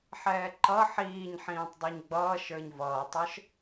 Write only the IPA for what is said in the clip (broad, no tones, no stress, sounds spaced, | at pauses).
ħ ɛː ǃ ʌ ħ iː ɲ ħ ĩː tˤ dˤ ʌ ɲ ɡ͡b ʌː ʃ ə˞ ɲ v ʌː tˤ ə˞ ʃ